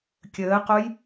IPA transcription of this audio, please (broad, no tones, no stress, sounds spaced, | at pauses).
kʲ əː q o j